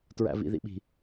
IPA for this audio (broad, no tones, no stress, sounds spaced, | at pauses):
t ɹ æ̰ v ḭ ð ḭ ɓ i̤